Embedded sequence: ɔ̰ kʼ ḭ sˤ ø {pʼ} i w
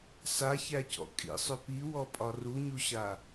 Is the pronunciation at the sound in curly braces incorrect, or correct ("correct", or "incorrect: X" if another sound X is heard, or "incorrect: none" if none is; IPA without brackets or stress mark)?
incorrect: p